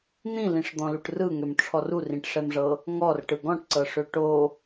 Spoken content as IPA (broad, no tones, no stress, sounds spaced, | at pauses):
n̪ ĩ l ĩ ʂ d̪ ɔ̃ l u ʈ r ɯ ŋ ø m ʈ͡ʂʰ ɔ r u r ĩ ʈ ʂ ɛ m ʐ ɤ | ŋ ɔ r ʈ ɯ ɡ ɔ̃ ʈ ǀ ɤ ʂ ø ʈ o